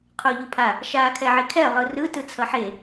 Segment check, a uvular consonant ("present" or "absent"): present